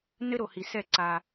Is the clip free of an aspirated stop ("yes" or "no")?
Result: yes